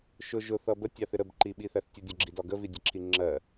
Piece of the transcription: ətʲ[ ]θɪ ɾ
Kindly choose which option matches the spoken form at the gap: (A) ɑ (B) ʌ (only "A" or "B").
A